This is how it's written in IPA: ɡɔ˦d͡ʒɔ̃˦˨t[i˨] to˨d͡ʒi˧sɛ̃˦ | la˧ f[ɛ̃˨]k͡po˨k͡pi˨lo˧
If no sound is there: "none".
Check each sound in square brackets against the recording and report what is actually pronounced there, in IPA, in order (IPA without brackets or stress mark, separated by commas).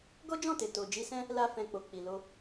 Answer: e˨, ɛ̃˨